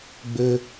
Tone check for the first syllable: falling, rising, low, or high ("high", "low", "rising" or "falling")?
low